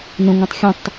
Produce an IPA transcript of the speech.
n ə̃ ŋʷ ɛ̃ tˤ xʲ ə̃ tˤ

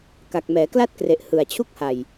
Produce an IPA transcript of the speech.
k a˨˩ k̚ m ɛː˩˦ k l a˥˩ t̚ k r e˨˩ ʔ h ɯ˨˩ a̯ t͡ɕʰ u˥˩ k̚ h a˨˩ j

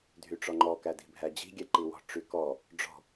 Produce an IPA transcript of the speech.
dʱ y ʈ͡ʂ ɔ ŋ͡ǃ ɔ k æ d i̤ bʱ æ d͡ʑ i̤ ɡʲ ɛ ǃ i w ɔ̤ ʈ͡ʂ y k ɔ | ɖ͡ʐ ɔ̤

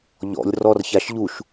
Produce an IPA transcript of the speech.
ʎ ɔ̰ lʲ r ɔ r ç a ʃ ʎ u ʃ

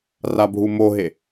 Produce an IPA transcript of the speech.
r a bʱ u m o ɦ e

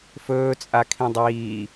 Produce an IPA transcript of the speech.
f ɵː t͡sʼ a kʰ ĩ dˤ iː

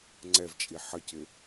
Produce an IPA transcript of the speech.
ŋ͡ǀ ɛ v t͡ʃʼ i ħ ʌ c ɪ

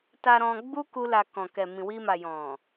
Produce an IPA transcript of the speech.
t a˧ ɾ ɔ̃˧ ɡ͡b u˦ k u˦ l a˧ k ɔ̃˨ k ɛ˨ m ĩ˨ w i˧ m a˨ j ɔ̃˨

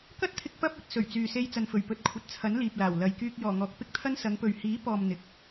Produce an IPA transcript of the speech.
k ɐ˥ t̚ t̪ʰ ɪ˧ k̚ p ɐ˥ p̚ ɵ˧ t̚ s ɵ˨˩ ɥ t͡s yː˨ s e˧ j t͡s ɐ˨ n f ɵ˨˩ ɥ p ɵ˨˥ t̚ kʷʰ ɐ˨ t̚ t͡sʰ ɐ˨˥ n l iː˨ p̚ l aː˨˩ w l ɐ˨ j k yː˧ k̚ j ɔː˨˩ ŋ ɔː˨ k̚ p ɪ˥ k̚ t̪ʰ ɐ˥ n s ɐ˨˧ ŋ p ɵ˨ ɥ h iː˨˥ p ɔː˨ m n̪ ɪ˨ k̚

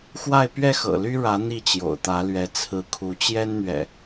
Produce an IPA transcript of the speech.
x w a˥˨ ɪ̯ p ɥ ɛ˥˨ x ɤ̰˨˩ l y˦ ɻ ä˨˦ n̪ i˥˨ t͡ɕ j o̰˨˩ ʊ̯ t̪ ä˨˦ l ɥ ɛ˨˦ t͡sʰ ɹ̩˨˦ kʰ u˨˦ t͡ɕ j ɛ˦ n n̪ ɥ ɛ̰˨˩

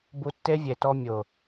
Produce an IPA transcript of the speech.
b u˧ tː e˦ vʲ e˨ t ɔ˧ mʲ ʊ˨

